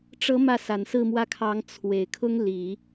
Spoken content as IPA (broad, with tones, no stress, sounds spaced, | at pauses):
ʈ͡ʂ ɤ˧˥ m ä˥˩ s a˨˩ n s ɹ̩˥˧ m w ä˥˩ kʰ ɑ˧˥ ŋ t͡sʰ w e˨˩ ɪ̯ kʰ ʊ˥ ŋ l i˨˩˦